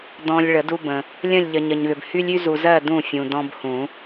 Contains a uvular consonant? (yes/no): no